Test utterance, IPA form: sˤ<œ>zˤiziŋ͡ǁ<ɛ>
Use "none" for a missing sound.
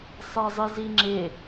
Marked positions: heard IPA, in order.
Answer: ɛ, ɪ

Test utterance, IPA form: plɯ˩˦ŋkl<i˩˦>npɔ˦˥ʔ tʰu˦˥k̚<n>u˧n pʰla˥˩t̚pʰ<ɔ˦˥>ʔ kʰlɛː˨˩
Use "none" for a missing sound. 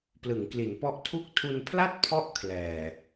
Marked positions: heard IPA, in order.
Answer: i˩˦, tʰ, ɔ˦˥

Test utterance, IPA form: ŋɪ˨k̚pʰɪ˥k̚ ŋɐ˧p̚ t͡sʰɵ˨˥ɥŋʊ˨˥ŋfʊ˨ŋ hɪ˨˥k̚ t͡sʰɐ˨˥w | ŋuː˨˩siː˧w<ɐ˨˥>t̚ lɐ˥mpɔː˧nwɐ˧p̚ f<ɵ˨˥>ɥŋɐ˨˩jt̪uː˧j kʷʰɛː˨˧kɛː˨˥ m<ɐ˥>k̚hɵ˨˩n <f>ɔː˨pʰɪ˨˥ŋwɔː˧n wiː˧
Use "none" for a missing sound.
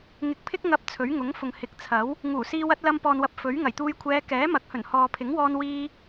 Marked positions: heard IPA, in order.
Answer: ɐ˨˥, ɵ˨˥, ɐ˨˥, h

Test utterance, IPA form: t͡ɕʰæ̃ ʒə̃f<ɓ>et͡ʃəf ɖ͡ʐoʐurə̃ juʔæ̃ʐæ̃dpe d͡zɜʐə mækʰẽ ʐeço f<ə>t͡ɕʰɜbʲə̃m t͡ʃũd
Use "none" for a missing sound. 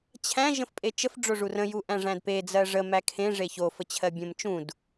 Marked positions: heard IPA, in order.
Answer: pʼ, ə

